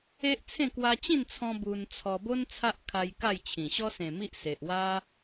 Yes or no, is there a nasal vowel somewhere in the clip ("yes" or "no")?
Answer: yes